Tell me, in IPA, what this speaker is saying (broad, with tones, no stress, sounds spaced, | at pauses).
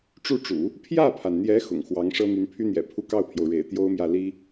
ʈ͡ʂ u˥˩ ʈ͡ʂ ṵ˨˩˦ | pʰ j ä˥˩ pʰ a˩ n n̪ j ɛ˧˥ x ʊ̰˨˩ ŋ x w ɑ˧˥ ŋ ʂ ɤ˥ n̪ y˧˥ n pʰ y˥ n̪ j ɛ̰˨˩ pʰ u˥˧ k ɑ˥˩ ʊ̯ pʰ j o˩ ʊ̯ ɻ ḛ˨˩ ɪ̯ t̪ j o˥ ʊ̯ m j ä˥˩ l i˥